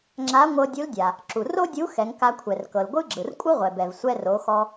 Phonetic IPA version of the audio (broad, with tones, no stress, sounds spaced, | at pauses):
ŋ͡ǁ a˧˥ ŋʷ ɤ˧ dʲ u˧˥ l dʲ a˩ | ǁ u˩ r o˥ dʲ u˧˥ x ɛ˩˧ ŋ k a˧ kʷʰ ɛ˩ r k ɤ˩ l ɡʷ ɯ˥ ɡ͡ǁ ɯ˩ r kʷʼ ɯ˥ ʁʷ ɛ˩ b ɛ˩ v sʷ ɛ˧ r o˩˧ x ɔ˧